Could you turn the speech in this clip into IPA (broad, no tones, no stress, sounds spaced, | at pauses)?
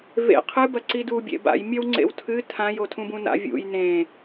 v ḛ qʰ ɨ b ɐ ǀ i d u bʲ ḛ b a̰ j mʲ ɐ w ŋ͡ǀ ḛ w tʰ ɨ tʰ ã j o tʰ ũ b ũ n a̰ vʲ ṵ j n ẽ